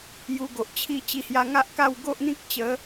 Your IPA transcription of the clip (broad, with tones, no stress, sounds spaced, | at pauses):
j u˧ ɡ o˨ ʔ t͡ɕʰ i˦ t͡ɕ i˧ h j a˧ ŋ a˦ ʔ k a˥˧ w ɡ o˦ ʔ n̪ ĩ˦ k̚ t͡ɕ ə˨˦